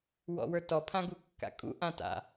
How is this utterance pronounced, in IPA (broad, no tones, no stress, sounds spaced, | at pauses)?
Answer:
w ɔ̰ w ə˞ t ɔ pʰ ã ɡ u kː a̰ kʼ ṵ ʔ ã t a̰